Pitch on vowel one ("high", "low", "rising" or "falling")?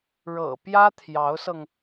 low